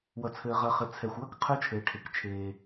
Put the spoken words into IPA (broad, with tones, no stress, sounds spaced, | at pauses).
w ʌ˩ t͡sʰ ɘː˩ ʁ ɐ˩ χ ɘ˩ t͡sʰ ɛ˩ xʷ w ɐ˥ k qʰ ə˞˥ t͡ʃʰ ɘː˩ ʈʰ e˩ k t͡ʃʰ eː˩